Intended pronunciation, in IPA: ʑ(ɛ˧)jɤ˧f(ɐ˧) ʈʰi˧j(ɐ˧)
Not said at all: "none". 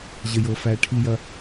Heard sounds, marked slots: ə˧, æ˧, ɐ˧

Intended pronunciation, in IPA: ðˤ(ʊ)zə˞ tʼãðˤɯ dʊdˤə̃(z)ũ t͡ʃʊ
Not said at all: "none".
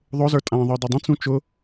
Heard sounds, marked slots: ʊ, t͡s

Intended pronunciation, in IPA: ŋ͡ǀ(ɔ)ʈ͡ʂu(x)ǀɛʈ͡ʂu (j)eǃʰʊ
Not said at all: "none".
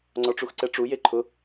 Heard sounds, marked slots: ɔ, x, j

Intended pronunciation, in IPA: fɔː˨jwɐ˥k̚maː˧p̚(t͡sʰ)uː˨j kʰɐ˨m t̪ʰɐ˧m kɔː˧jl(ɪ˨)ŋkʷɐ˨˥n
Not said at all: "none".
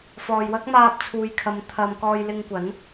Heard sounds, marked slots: t͡sʰ, ɪ˧

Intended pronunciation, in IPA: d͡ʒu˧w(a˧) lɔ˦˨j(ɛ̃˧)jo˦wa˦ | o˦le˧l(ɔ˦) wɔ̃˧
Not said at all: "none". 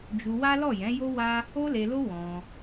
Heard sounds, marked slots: a˦, ɛ̃˨˦, o˦

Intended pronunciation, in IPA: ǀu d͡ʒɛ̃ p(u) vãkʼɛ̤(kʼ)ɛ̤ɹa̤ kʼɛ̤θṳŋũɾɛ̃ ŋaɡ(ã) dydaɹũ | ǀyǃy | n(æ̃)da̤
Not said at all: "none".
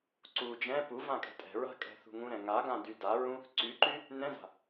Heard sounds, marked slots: u, tʼ, ã, ɛ̃

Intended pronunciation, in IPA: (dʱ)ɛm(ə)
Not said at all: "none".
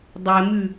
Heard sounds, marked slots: dˤ, ʉ

